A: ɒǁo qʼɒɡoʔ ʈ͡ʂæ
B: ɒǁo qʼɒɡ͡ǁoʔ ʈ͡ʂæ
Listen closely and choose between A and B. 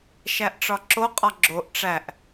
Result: B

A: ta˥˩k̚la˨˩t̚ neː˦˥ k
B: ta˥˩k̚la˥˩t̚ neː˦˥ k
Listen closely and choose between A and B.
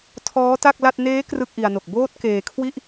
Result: B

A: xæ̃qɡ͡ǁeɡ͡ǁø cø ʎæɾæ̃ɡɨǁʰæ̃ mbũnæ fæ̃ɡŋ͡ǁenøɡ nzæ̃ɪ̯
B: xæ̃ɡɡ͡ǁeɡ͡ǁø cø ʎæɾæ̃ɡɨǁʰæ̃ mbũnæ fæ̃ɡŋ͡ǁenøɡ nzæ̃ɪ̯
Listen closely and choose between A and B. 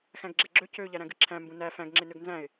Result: B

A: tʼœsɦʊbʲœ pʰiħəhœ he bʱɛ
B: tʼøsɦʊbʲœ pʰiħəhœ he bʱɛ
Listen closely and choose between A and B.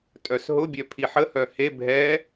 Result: A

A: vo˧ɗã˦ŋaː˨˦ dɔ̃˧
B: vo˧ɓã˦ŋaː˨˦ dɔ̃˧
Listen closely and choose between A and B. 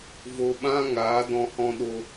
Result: B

